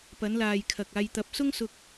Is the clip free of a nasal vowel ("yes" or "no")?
yes